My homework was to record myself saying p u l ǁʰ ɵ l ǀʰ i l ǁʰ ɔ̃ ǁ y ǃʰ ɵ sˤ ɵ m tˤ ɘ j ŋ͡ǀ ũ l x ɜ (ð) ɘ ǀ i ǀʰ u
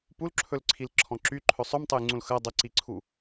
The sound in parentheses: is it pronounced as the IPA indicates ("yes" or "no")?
no